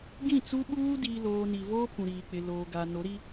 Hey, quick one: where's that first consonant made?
velum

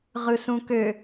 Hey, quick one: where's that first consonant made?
uvula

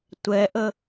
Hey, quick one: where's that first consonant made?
tongue tip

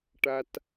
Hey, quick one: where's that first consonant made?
retroflex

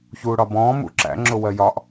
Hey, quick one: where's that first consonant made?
palate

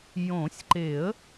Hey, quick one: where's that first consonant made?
palate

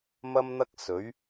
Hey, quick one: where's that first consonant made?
lips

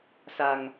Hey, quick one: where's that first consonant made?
tongue tip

